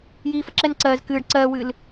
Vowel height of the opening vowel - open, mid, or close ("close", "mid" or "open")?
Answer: close